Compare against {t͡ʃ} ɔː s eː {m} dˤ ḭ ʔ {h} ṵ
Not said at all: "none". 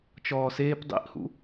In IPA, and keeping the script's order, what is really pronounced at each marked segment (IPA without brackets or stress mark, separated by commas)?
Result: t͡ʃ, p, h